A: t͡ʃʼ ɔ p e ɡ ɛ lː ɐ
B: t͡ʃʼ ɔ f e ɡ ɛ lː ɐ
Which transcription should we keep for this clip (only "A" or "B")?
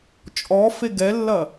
B